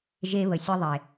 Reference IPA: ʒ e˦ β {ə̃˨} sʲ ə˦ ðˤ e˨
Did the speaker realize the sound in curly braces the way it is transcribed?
no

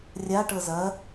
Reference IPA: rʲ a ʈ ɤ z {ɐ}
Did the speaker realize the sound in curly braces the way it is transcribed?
yes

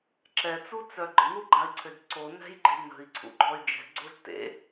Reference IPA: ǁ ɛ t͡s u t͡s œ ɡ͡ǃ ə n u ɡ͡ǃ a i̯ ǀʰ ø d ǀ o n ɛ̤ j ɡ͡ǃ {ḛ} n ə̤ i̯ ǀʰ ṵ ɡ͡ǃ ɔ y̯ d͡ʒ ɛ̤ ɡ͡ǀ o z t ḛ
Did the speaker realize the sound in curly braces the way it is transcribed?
no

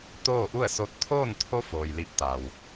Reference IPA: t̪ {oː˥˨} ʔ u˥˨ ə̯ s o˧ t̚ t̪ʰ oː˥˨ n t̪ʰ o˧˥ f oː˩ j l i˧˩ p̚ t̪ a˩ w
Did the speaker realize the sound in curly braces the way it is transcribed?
yes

